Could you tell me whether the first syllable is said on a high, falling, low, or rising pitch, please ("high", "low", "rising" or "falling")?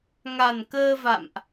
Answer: low